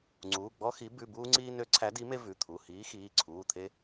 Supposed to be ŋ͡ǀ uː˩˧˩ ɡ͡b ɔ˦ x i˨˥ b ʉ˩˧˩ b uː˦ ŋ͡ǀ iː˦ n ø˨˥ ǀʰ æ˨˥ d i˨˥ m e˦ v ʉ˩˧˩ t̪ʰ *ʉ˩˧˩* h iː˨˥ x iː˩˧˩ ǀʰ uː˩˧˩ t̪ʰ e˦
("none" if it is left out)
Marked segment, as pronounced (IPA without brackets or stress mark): u˩˧˩